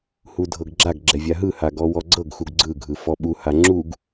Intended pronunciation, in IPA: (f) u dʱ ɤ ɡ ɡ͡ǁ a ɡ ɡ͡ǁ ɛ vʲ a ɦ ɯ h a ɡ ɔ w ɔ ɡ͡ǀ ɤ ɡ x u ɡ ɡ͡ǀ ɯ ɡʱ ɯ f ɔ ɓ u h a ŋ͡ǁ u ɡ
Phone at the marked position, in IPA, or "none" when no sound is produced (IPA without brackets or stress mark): h